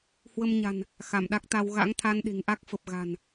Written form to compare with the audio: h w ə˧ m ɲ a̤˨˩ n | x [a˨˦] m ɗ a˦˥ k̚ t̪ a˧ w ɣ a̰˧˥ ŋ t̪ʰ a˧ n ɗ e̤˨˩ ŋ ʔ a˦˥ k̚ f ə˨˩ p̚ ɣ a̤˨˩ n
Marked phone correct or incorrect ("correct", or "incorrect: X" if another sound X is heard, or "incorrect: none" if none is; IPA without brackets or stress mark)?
incorrect: a˧˩